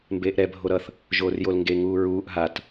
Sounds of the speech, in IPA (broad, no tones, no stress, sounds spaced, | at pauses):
m b eː ʔ ɾ ɛ bʱ o ɾ ʌ θ | ʒ oː r j o l ŋ ɡ e ŋ uː ɹ uː ʔ ɦ a t